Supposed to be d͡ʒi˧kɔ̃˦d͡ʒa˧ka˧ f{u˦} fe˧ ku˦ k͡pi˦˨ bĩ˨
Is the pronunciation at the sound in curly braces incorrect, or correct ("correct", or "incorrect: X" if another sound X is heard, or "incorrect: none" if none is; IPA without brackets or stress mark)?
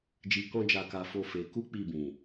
incorrect: o˦